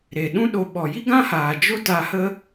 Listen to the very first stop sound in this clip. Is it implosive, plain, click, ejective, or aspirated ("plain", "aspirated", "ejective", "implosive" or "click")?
implosive